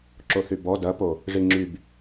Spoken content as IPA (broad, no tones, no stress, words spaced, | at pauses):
ǁoθybɔ dɐpo | ʐiŋ͡ǁyb